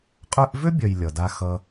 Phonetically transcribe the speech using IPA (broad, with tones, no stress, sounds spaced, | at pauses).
qʼ œ˦ ʔ v ø˥ bʲ œ˨ j lʲ ʌ˩ d a˦ x ʌ˦